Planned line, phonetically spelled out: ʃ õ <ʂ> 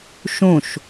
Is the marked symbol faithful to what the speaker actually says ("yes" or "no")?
no